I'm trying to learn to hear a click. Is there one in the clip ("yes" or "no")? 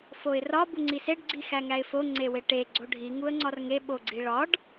yes